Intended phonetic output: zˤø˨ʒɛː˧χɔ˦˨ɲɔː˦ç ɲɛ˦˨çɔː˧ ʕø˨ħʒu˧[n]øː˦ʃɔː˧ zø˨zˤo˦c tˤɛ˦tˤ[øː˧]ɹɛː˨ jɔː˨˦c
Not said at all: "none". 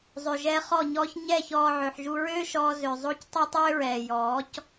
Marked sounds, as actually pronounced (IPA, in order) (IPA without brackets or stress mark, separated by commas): ɹ, øː˦